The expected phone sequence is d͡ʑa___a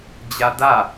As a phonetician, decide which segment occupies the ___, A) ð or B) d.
B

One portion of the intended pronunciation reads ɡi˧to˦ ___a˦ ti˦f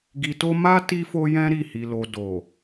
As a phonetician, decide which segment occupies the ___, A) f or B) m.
B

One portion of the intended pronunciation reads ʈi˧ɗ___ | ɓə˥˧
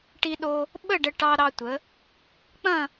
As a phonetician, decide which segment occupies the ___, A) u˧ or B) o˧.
B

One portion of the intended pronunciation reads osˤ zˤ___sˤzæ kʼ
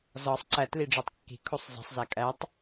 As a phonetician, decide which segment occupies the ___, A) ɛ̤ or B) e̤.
B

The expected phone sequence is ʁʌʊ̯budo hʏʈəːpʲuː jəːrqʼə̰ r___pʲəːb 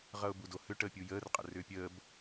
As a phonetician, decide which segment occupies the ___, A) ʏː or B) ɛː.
A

